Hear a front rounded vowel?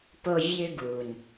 yes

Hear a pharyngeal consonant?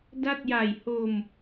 no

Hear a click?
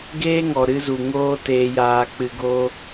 no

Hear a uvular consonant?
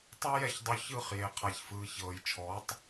yes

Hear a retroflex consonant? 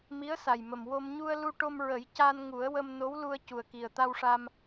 yes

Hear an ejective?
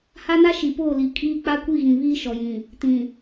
yes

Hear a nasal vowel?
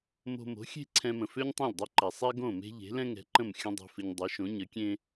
yes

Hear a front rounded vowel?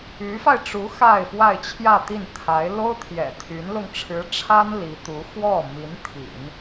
yes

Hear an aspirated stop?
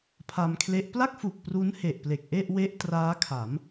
yes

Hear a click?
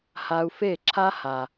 yes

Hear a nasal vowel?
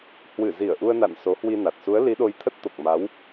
no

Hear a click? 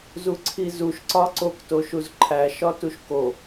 yes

